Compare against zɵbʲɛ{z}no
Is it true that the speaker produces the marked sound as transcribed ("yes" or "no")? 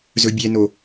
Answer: no